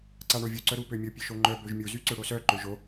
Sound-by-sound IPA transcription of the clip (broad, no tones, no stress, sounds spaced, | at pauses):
ǀ a ɳ o vʲ u ǀ œ ɾ u p ø mʲ o pʲ ø ʃ o ŋ͡ǃ œ b ø ʒ mʲ u z y ǀ ø ɽ o s œ ǃ ø ʒ o